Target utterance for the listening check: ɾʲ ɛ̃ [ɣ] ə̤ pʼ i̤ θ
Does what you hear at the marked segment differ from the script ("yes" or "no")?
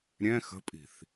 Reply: yes